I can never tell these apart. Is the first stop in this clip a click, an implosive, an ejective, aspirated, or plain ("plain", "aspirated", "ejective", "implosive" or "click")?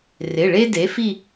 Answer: plain